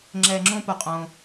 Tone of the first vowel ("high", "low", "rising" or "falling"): low